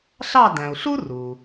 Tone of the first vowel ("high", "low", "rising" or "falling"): falling